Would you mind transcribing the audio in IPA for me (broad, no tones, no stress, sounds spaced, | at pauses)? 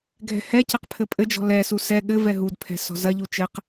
ɡʱ ɛ̤ h ɛ c ɘ q pʰ ɘ pʼ ɘ d͡ʒ ɔ̤ l ɛ s u s ɛ ɠ ɘ v ɛ ɦ u d pʰ ɛ̤ s ɔ̤ z ɐ ʎ u t͡ʃ ɘ q